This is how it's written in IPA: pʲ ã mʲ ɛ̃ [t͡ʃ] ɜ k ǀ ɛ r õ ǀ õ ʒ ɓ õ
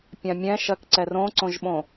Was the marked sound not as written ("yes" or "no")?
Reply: yes